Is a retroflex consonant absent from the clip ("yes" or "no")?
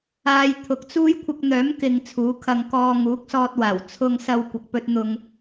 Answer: yes